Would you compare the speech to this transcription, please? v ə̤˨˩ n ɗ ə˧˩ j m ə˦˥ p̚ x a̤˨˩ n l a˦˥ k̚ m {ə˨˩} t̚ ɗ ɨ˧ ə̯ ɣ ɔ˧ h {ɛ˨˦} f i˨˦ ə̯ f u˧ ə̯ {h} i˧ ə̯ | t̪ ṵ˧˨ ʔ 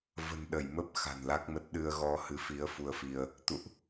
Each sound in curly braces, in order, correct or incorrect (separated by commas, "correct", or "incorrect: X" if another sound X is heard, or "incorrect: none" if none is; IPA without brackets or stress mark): incorrect: ə˦˥, incorrect: ɨ˨˦, incorrect: f